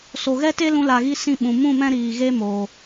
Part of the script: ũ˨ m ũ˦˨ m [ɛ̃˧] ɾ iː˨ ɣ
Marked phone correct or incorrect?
correct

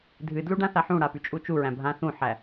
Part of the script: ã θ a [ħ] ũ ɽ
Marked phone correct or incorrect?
correct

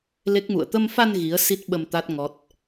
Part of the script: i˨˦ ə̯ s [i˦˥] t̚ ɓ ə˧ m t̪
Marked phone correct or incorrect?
correct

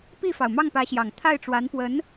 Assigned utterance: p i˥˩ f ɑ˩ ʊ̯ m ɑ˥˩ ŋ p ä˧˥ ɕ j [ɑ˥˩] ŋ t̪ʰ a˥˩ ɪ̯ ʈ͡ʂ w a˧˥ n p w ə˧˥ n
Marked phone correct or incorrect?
incorrect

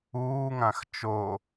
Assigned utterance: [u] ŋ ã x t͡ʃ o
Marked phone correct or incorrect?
incorrect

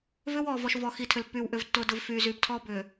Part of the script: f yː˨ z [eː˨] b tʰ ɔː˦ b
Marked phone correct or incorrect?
incorrect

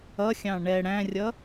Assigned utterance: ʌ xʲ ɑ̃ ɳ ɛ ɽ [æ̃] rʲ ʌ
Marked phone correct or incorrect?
correct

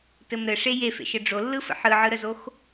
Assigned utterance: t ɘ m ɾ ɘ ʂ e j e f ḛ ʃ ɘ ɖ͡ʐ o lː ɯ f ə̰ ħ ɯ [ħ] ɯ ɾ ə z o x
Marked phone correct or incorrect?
incorrect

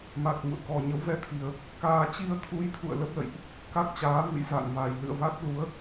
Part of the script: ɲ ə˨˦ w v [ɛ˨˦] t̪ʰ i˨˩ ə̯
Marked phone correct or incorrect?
correct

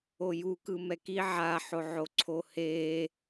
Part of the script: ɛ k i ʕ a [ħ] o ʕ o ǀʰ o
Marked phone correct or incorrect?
correct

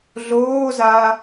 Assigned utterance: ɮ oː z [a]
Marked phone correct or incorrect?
correct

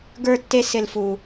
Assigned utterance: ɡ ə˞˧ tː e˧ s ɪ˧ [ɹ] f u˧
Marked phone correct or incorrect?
incorrect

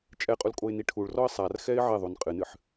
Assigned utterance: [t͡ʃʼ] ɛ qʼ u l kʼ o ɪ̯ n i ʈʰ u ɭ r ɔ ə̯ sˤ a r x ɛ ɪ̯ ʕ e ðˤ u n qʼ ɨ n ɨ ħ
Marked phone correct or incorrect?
correct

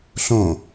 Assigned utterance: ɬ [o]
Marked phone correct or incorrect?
incorrect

